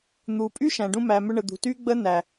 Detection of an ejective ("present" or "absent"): present